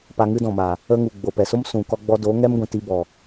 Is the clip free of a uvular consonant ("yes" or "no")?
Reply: yes